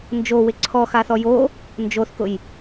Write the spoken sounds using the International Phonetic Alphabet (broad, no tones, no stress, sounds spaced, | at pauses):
n d͡ʒ o w ɪ ǀʰ ɔ x a θ ɔ j o | n d͡ʒ o θ k ʊ j